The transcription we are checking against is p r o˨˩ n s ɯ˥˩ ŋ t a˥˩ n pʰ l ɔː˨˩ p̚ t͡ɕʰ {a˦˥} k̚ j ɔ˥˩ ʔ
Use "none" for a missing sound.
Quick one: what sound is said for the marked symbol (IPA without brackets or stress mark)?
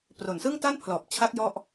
a˦˥